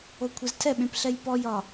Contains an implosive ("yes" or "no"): yes